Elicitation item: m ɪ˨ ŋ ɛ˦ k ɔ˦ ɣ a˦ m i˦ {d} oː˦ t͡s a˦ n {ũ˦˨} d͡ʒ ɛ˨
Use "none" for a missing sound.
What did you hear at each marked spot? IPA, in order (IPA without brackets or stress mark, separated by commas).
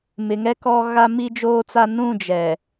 d͡ʒ, ũ˦˨